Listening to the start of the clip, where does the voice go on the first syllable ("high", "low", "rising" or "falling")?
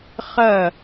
falling